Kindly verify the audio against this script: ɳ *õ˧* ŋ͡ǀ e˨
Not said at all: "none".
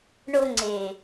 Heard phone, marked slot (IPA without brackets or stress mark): o˧